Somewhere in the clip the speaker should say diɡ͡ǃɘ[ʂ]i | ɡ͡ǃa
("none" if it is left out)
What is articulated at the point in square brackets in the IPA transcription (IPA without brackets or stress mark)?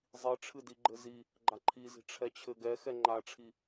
z